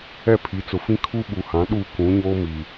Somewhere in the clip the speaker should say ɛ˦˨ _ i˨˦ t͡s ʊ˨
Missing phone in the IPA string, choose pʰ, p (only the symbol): pʰ